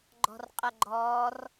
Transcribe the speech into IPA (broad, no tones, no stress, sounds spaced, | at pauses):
ɡ͡ǃ ɔ̤ r qʼ ɐ ɡ͡ǃ ɔː r